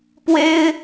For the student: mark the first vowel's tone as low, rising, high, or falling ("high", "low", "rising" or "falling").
high